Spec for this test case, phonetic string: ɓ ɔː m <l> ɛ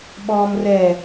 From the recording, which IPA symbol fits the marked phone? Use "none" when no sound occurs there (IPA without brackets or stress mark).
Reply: r